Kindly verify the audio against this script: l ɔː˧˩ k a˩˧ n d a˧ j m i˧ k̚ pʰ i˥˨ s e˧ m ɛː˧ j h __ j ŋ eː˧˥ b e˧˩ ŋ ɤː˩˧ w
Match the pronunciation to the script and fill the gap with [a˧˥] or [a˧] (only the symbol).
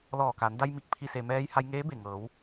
a˧